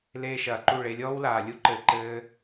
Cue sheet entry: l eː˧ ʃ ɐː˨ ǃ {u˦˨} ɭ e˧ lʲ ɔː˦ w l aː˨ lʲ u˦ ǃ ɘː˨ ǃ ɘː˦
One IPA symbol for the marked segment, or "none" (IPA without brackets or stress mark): u˦˨